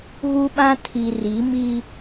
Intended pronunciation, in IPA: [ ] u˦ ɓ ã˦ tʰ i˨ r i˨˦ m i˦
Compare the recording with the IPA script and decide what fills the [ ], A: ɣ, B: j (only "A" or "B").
A